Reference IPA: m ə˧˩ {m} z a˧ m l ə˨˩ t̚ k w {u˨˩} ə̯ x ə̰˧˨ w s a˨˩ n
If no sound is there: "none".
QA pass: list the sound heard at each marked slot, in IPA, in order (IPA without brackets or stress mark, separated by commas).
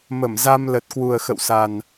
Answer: m, u˨˩